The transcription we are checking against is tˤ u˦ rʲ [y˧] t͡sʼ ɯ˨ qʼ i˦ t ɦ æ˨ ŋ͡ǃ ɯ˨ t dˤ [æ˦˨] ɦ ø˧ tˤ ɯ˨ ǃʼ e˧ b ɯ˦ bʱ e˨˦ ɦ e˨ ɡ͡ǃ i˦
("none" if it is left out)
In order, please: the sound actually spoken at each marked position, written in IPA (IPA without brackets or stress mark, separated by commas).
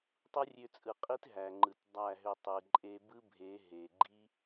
ø˧, æ˦˨